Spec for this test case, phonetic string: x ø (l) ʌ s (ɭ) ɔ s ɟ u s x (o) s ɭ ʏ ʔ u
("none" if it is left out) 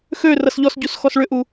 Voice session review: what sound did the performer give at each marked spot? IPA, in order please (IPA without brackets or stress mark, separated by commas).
r, ʎ, ɔ